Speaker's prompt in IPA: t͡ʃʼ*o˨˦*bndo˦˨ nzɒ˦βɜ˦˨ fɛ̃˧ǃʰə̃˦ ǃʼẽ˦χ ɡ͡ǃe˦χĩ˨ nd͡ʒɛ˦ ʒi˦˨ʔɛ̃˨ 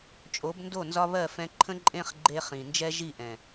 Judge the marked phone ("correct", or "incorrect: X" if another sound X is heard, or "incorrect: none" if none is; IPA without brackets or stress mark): correct